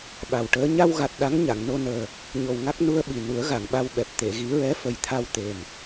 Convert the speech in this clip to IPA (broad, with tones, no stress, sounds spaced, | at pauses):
ɓ a˨˩ w ʈ əː˧˥ ɲ a˧ w ɣ a˨˩ t̚ ɗ a˧˥ ŋ ɲ a˨˩˨ ŋ n o˧ n əː˨˩ | ɲ o˨˩ w ŋ a˦˥ k̚ n u˧ ə̯ ɓ i˨˩ n u˨˩˦ ə̯ ɣ a˨˩˨ ŋ ɓ a˧ w ɓ ɛ˨˩ p̚ t̪ e˨˩˨ ɣ i˨˩˦ ɹ ɛ˧˥ f ə˨˩ j t̪ʰ a˧ w t̪ e˨˩ m